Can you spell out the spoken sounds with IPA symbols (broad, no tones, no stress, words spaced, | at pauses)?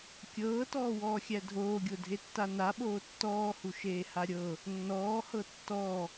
kʲɤːtɔːwɔːxʲæ dʱoːɡʲodʱetːa naɓoː tːɔːhuʃeːha ɾʲɤ | nːɔːhɤ tːɔ